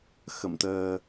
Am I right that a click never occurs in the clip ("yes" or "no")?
yes